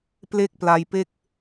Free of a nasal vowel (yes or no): yes